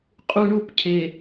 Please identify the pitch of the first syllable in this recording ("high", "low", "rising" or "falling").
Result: low